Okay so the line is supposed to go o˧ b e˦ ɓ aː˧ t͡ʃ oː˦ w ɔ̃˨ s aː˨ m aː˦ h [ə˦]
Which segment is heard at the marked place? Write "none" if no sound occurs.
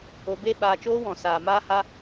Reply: a˦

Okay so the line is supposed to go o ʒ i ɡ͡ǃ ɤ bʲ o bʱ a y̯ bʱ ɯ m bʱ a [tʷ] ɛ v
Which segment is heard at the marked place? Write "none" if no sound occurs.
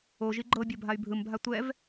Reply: tʷ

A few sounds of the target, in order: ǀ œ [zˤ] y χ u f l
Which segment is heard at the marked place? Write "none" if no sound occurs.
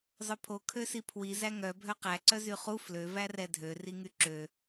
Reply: z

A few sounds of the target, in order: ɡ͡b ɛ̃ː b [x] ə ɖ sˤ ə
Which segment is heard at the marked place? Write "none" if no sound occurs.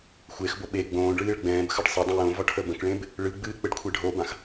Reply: x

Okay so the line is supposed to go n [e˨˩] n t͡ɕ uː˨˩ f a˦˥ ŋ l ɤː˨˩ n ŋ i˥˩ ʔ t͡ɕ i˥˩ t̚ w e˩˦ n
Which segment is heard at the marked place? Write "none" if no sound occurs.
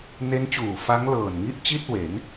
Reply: e˦˥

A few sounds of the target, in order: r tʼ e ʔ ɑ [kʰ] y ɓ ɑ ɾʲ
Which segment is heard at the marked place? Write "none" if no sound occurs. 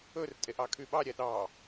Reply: kʰ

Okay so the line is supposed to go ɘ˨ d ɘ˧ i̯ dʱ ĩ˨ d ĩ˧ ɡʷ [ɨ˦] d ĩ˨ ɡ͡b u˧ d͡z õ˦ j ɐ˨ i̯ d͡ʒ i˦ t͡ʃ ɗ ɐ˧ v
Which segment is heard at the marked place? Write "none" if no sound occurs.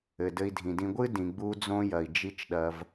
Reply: ɨ˦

